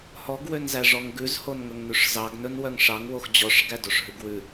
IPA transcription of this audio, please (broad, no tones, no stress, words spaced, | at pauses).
hɔɡ wønzæʐɔŋɡʉz honŋɵŋnʉʂzɑɡ nɵnwœŋʂɑŋ woxd͡ʑɔʂ ɡædoʂɦʉɡwʉ